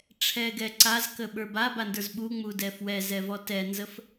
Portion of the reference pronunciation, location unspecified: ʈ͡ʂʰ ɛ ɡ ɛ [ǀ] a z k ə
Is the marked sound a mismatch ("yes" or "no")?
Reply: no